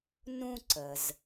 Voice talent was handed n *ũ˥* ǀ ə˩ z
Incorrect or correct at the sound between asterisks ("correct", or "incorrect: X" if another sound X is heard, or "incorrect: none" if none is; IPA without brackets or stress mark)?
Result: correct